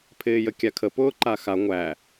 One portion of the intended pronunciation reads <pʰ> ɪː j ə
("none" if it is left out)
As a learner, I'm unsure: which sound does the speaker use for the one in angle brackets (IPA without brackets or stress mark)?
pʰ